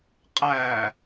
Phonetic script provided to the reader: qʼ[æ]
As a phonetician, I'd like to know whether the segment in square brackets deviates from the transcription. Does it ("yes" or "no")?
no